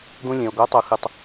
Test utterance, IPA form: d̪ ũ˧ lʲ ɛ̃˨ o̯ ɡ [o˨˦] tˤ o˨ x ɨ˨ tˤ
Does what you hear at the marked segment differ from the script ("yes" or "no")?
no